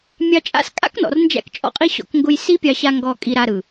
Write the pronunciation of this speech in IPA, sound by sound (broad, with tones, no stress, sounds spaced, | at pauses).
mʲ ɑ˧ t͡ʃʼ a̰˦ s kʼ a̰˦ k n ɔ̰˨ r n d͡ʒ æ̰˧ k t͡ʃʼ ɔ̰˦ qʼ i˦ ɕ ɔ̰˧ k ŋ ɡ ʊ˧ j s i˦ pʲ ɑ˧ ɕ a˧ ŋ ɡ ɔ˧ kʼ i˧ ɾ a˧ ɾ ɯ˨